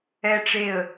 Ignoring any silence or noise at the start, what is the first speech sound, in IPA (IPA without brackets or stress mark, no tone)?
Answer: ɛ